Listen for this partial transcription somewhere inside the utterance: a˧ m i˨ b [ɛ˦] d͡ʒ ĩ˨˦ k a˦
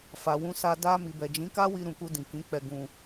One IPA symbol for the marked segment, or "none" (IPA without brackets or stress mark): ɛ˨